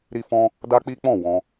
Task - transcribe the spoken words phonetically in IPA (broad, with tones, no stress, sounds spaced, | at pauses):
ɾ i˧ f ɔ̃˧ | d a˦ k͡p i˦ k͡p ɔ̃˦˨ w ɔ̃˧